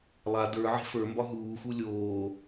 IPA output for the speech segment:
lˠa də˞ ʕe̤fə˞mbɒ ɦuːxu lʲoː

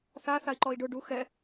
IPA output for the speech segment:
θa θai̯ǃɔi̯ɖʊ ɖu xɛ

